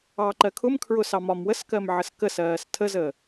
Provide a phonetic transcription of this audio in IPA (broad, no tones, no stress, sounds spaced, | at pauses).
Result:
ɑː ǃ ɜ kʰ ʊ m kʰ ɹ ʊ s ɑ m ɒ m w ə s k ɜ m ʕ ə s k ə s ɜː s tʰ ə z əː